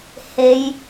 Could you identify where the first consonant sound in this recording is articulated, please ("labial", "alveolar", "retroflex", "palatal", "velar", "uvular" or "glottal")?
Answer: glottal